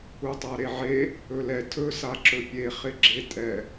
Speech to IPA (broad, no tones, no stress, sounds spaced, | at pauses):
u tˤ a ɾ e ʕ e | ɵ l ɛ tʰ ɵ s a ǁ ɵ pʲ e χ ɪ ɡ͡ǁ e tʼ ɛ